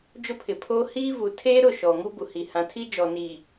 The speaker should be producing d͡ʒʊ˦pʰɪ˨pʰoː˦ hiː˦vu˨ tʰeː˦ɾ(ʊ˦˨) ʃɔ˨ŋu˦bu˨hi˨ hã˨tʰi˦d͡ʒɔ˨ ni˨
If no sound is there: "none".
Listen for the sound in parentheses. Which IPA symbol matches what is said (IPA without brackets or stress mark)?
ʊ˦˨